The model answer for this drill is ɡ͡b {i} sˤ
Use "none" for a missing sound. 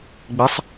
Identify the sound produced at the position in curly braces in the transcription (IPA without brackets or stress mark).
ɪ